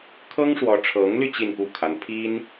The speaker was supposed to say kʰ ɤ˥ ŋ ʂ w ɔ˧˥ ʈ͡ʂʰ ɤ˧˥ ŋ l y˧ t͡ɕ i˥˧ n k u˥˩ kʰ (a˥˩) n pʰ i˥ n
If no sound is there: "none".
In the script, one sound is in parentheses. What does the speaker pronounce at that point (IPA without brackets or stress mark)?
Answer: a˧˥